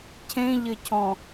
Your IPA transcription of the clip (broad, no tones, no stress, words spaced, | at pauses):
cʰẽʎɘcʰɔ̃